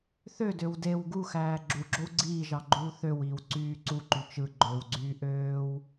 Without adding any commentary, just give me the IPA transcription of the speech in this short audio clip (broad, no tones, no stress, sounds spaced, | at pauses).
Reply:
θ ø d ø w d e w ɡ u x æː ɡ͡ǁ u ɡ͡ǁ o w ɡ͡ǀ iː ʒ ɑ ɡ͡ǃ uː θ ø w iː w ǀ yː ǀ u ǃ y t͡ʃ ɯ ɡ͡ǃ ø w ɡ͡ǀ yː ʔ øː w